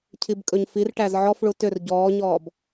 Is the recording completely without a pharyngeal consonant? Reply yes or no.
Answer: no